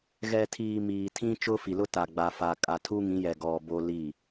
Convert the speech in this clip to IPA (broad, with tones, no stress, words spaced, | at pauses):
ɣɛ˨tʰiː˨ miː˨tʰĩ˦t͡ʃʊ˦fi˨ lʊ˦ta˨ɡ͡ba˨ fa˨ kʼa˨tʰu˦ ŋĩ˨˦jɛ˨ɡɔ˨ bo˦li˦˨